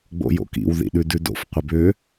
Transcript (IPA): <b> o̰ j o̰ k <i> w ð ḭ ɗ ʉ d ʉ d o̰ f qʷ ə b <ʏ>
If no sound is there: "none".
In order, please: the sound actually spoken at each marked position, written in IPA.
ɡ͡b, ḭ, ʏ

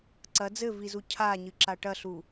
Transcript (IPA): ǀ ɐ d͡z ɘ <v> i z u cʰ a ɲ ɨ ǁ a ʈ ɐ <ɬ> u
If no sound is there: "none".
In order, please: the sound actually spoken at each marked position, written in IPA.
v, ɬ

